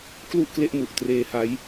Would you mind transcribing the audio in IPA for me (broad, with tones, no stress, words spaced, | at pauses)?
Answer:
klu˥˩ʔkle˦˥ʔmu˨˩ʔ treː˧ha˦˥j